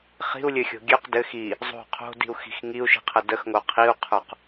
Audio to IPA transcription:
χ i̤ u̯ lʲ ɘ xʲ o̤ ɡʲ ø q d ɘ x i | zˤ o̤ qʰ o̤ d i̤ u̯ x i̤ x ŋ i u̯ ʃ i̤ qʰ ə d ə x ŋ o qʰ i u̯ qʰ ə˞ q

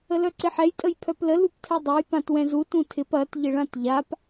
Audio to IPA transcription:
ə l œ ǀ ɪ ħ ɛ j tʼ ə j pʰ œ p l ə l u p tʰ ɛ dˤ e j p ã t w ɛ̃ z u t ũ tʰ ɪ p ɐ t ʎ ɪ ɭ ã t ʎ a p

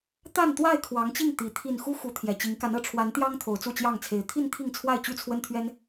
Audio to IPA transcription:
t̪ a˥˨ n t̪ w a˥˨ ɪ̯ kʰ w ɑ˨˦ ŋ t͡ɕ i˥˨ ŋ t̪ i˨˦ t̪ʰ i˥˨ n x u˦ x u˨˦ t̪ʰ j ɛ˨˩ t͡ɕ i˨˦ ŋ k a˨˦ n ɤ˨˩ ʈ͡ʂʰ w a˨˦ n t̪ j ɑ˦ ŋ t̪ʰ o˨˦ ʊ̯ t͡s u˥˨ t͡ɕ j ɑ˥˨ ŋ t͡sʰ e˨˦ ɪ̯ t̪ʰ i˥˨ n t̪ʰ i˥˨ ŋ t͡sʰ w a˥˨ ɪ̯ t͡ɕ y˥˨ t͡sʰ w ə˦ n t̪ʰ ɥ ɛ˦ n

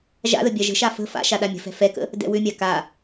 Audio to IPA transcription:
ʒ a̰ ð ə bʲ a ʒ ə̤ ʃ a f ə̤ f a̰ ʃ a ɗ a mʲ ə̤ f ɛ̤ f ɛ k ə̰ | d ɛ̰ w ʏ mʲ a k a

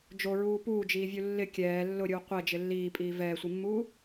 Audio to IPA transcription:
d͡ʒ o ɹ uː p uː d͡ʒ iː vʲ u lː ɪ kʲ ɛː lː ʊ ɾʲ uː qʷ ɛ d͡ʒ ɪ lː iː pʼ iː v ɛː sʷ i mː uː

